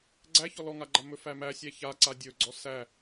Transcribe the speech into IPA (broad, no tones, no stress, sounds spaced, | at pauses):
ɡ͡ǀ æ ç ɔ l ɔ ŋ a ɡ͡ǃ a m ɵ f æ m æ sʲ æ ç a ǀ a dʲ ɵ ɡ͡ǀ ɔ s æ